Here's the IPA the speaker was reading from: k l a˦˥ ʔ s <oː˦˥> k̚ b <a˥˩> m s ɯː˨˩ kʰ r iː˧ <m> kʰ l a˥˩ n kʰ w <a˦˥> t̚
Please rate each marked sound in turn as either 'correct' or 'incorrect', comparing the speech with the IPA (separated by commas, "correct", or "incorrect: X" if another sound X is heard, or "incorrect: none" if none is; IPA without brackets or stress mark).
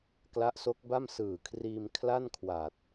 incorrect: o˦˥, correct, correct, incorrect: a˨˩